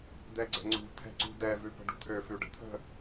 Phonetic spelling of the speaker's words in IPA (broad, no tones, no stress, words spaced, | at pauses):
d̪ɛɡ͡ǀɛ̤ŋ͡ǀṳ t̪ʰɛ̤ǀṳdɛ vʉpə̤ɖṳt̪ʰø fʉɖə̤t̪ʰə̤